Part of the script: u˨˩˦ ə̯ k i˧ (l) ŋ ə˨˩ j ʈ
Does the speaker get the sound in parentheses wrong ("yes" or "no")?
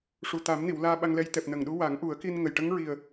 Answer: yes